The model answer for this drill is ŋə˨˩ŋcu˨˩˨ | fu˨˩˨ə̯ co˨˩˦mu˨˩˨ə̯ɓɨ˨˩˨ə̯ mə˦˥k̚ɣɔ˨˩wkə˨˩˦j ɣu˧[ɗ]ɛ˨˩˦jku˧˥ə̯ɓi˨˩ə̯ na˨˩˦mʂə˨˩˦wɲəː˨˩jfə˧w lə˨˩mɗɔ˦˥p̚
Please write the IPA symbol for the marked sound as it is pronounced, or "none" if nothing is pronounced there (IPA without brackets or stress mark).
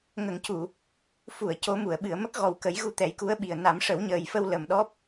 t̪